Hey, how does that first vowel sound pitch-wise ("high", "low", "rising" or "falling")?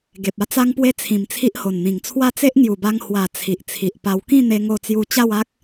low